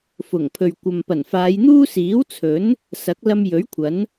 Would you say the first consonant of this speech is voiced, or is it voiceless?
voiceless